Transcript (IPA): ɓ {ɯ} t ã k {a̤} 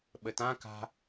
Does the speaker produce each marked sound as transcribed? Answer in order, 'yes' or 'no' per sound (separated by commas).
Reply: no, yes